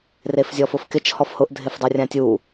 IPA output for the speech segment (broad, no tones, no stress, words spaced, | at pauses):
refzʲɔfʊfkɪt͡ʃ hɔfhʊʔ dʱɪfdˤorʲãtʲu